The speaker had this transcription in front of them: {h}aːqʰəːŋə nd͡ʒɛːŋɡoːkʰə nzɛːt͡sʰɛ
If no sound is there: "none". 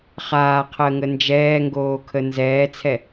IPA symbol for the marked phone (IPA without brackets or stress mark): χ